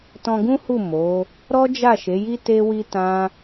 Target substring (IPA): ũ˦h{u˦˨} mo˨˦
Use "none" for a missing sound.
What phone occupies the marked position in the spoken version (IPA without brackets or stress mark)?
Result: u˦˨